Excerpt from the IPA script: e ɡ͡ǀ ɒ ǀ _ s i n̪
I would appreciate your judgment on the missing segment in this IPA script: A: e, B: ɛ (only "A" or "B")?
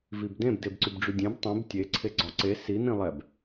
A